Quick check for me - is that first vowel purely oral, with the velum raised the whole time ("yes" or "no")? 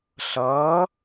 yes